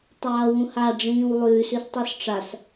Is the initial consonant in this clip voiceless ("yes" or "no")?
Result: yes